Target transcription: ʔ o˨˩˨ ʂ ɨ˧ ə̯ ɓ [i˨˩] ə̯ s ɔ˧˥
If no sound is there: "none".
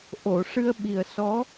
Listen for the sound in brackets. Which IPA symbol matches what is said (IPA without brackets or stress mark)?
i˨˩